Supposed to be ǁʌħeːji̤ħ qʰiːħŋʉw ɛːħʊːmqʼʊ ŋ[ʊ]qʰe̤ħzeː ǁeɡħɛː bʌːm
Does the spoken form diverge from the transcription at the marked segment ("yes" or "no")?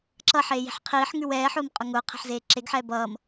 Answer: yes